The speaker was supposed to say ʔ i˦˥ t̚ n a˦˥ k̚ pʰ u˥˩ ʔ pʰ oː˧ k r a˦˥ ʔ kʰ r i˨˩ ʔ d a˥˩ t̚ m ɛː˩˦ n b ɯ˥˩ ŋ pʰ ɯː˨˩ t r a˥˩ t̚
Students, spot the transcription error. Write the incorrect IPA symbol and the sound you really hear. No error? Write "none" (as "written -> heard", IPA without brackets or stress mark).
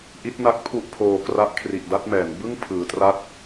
none